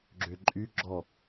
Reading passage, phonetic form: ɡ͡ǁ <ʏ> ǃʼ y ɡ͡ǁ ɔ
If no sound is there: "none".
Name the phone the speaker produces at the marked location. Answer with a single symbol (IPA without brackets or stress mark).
ʏ